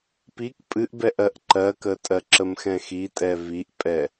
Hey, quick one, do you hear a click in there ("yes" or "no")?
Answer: yes